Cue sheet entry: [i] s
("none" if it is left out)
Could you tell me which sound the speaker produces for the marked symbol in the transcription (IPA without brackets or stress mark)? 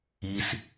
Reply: i